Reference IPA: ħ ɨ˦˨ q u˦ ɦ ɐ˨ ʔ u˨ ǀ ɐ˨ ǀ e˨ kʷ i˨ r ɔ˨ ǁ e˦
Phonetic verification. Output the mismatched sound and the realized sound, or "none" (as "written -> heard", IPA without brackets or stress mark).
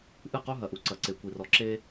ħ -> ʔ